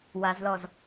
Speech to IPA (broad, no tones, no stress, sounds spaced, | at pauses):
w a z l ɔ z